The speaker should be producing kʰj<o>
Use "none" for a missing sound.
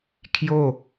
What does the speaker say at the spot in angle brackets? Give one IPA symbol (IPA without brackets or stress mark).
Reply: o